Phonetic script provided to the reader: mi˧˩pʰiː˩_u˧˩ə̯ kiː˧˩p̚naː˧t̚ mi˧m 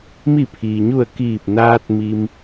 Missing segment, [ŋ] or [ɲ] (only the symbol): ɲ